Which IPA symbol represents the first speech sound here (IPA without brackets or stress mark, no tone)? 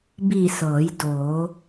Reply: b